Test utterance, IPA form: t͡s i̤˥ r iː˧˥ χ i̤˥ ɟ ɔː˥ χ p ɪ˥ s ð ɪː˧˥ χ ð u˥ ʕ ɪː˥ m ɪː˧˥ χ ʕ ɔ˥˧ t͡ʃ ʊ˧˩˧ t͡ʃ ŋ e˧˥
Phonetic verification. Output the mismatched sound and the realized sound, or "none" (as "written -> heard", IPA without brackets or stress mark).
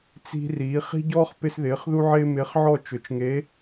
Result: none